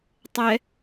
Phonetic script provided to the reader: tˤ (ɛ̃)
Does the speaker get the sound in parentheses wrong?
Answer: yes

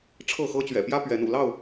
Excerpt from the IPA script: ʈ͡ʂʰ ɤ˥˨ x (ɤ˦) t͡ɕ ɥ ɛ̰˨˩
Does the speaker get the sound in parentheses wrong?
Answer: no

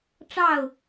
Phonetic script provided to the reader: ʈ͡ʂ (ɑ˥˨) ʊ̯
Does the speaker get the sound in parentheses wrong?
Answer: no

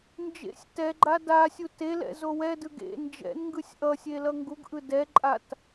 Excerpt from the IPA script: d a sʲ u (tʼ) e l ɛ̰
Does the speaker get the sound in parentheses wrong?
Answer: yes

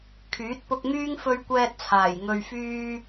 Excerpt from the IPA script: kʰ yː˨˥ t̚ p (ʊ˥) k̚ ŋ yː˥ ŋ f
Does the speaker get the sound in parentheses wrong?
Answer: yes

